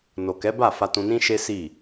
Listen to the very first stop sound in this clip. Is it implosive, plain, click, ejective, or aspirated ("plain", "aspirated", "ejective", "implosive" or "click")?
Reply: plain